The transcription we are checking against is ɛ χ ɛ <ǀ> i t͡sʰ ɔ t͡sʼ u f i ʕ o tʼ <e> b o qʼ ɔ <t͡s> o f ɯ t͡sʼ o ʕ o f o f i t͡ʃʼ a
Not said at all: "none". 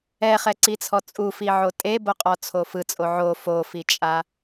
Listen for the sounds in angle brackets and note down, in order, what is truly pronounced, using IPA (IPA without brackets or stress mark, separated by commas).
ǀ, e, t͡sʰ